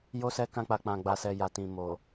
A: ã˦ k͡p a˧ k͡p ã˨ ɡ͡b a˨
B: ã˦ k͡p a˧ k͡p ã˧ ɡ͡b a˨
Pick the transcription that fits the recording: A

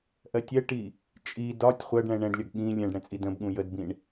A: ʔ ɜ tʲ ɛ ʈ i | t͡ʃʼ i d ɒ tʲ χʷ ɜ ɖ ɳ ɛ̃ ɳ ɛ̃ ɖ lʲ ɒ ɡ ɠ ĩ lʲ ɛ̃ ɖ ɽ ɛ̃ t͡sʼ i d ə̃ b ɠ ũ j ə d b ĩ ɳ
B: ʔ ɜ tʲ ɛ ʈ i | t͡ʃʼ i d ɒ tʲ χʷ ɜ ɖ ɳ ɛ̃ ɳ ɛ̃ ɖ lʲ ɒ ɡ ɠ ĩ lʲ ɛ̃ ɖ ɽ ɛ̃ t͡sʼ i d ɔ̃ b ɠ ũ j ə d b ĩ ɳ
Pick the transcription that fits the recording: A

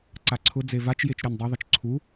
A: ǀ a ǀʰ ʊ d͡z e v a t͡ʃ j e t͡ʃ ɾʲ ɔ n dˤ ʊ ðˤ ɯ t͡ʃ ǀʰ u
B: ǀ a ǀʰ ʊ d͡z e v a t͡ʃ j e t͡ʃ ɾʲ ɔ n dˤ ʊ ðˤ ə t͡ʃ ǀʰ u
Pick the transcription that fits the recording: B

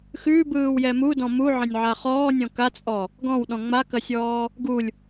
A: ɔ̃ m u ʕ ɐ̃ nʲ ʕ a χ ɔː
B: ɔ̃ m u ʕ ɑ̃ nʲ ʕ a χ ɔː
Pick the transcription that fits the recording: A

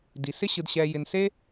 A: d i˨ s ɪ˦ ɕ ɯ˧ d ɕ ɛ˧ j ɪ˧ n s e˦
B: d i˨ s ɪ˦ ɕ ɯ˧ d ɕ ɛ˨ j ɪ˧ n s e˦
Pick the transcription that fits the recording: A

